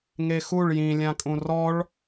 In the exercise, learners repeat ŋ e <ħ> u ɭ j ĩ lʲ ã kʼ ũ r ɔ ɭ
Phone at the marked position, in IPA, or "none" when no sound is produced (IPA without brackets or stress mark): x